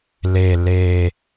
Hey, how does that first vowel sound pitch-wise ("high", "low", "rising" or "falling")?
low